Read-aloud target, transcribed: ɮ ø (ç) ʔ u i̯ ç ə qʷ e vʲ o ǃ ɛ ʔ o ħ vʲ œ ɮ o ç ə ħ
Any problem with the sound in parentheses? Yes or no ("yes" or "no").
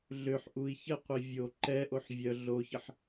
yes